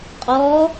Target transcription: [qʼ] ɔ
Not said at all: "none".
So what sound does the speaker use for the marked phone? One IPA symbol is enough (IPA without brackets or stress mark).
qʼ